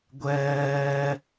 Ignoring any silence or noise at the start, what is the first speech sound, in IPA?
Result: ɡʷ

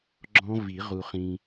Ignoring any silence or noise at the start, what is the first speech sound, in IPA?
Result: ɡ͡ǁ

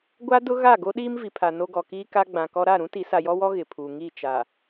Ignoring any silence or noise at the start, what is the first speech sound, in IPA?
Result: ɡʷ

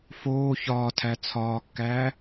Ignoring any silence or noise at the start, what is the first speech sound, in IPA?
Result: f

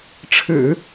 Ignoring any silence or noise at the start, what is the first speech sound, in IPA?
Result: ʈ͡ʂʰ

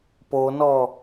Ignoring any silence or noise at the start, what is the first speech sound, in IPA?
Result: p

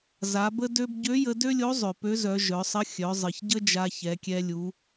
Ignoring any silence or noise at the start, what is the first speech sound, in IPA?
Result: z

